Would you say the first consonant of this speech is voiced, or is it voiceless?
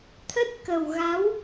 voiceless